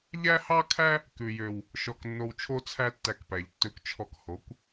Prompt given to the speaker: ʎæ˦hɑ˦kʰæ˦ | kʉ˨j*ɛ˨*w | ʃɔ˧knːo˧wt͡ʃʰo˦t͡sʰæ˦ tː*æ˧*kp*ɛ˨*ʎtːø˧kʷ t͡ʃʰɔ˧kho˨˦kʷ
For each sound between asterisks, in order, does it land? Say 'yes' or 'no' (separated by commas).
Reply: no, yes, no